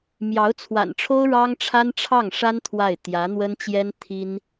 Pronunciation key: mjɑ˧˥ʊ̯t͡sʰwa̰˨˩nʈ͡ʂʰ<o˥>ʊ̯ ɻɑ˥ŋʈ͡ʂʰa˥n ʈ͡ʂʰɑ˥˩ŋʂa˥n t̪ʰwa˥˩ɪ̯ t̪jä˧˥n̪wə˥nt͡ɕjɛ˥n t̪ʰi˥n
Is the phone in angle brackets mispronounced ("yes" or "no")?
no